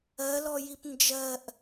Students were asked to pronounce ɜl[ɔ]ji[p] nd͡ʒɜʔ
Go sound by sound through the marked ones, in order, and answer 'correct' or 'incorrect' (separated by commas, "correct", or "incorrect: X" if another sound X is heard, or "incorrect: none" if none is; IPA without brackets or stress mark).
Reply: correct, correct